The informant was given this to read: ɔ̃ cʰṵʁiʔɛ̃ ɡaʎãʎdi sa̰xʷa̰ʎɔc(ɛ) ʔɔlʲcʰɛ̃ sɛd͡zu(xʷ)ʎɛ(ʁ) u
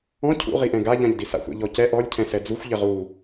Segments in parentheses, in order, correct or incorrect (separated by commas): correct, correct, correct